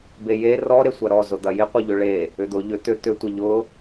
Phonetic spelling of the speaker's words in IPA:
b e j e r ɔ ɾ e sʷ ɐ ɾ ɔ z ʊ d̪ ɐ j ɪ qʷ ɪ ʎ ʏ ɭ e | ʏ d̪ ʊ ʎ ʏ t̪ ʏ t̪ ʏ tʷ ɪ ʎ ʊ

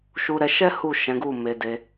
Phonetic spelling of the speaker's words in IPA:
ʃ u˧ ɾ ɛ˧ ʃ ɛ˦ h u˦˨ ʃ ɛ̃˨˦ ɡ u˦˨ m e˧ d e˧

